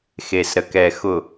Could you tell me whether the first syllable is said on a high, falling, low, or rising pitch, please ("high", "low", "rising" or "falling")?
low